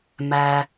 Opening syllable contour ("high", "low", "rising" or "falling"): low